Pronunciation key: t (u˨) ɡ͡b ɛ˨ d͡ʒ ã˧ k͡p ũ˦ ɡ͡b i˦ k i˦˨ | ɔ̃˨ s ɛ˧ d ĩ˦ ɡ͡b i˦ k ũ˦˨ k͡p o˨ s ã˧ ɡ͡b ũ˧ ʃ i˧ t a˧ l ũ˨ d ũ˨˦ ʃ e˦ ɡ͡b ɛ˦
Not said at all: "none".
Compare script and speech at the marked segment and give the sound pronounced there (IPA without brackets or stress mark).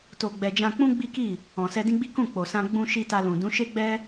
o˨